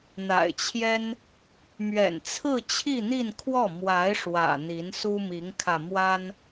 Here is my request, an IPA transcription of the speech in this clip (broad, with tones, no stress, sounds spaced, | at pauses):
n̪ a̰˨˩ ɪ̯ t͡ɕʰ j ɛ˥ n | m ɥ ɛ̰˨˩ n t͡sʰ ɹ̩˥˧ t͡ɕʰ i˥˧ n̪ i˥˧ n kʰ w ɔ˥˩ m w a˧˥ ɪ̯ ʂ w ä̰˨˩ n̪ i˧˥ n s u˥ m i˧˥ ŋ kʰ ä˧ m w a˥ n